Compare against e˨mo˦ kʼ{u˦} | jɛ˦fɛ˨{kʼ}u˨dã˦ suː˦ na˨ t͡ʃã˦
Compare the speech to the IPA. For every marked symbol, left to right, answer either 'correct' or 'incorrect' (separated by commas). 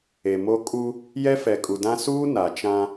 correct, correct